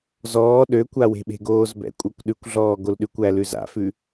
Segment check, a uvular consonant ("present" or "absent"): absent